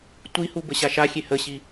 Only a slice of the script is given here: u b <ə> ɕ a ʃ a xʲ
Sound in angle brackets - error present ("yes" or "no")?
no